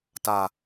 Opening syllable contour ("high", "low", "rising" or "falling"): low